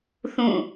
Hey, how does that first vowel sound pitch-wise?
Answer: falling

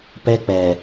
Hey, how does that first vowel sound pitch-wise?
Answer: high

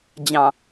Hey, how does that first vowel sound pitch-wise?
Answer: low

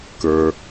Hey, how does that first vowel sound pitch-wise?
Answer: low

